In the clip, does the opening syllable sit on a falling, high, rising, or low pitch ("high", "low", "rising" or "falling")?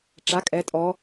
rising